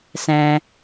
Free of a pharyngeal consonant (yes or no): yes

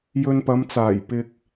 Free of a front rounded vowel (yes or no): yes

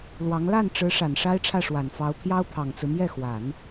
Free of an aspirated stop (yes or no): no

